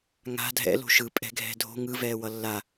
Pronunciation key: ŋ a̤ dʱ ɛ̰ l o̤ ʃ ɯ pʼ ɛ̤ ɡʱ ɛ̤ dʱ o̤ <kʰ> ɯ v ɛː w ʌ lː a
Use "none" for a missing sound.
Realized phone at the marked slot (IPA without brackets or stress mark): ŋ